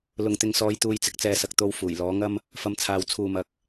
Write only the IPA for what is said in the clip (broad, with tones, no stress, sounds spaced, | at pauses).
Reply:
l ʊ˨ ŋ t̪ ɪ˨ ŋ s ɔː˨˧ j t̪ uː˧ j t͡s ɪ˨ k̚ t͡s ɛː˧ s ɐ˨ k̚ t̪ o˧ w f uː˨˩ j l ɔː˨˥ ŋ ɐ˥ m | f ɐ˧ m t͡sʰ aː˨ w t͡sʰ uː˨ m ɐ˨˥ k̚